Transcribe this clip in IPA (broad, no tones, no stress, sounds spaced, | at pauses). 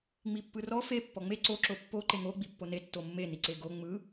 ŋ͡m i pː ɯ r ɔ f e pː ɔ ŋ͡m e ǀ o ǁ o pː o ǃ e ŋ o ɡ͡b i pː o n e tː o mː e n i ǀ e ɡ o ŋ͡m ɯ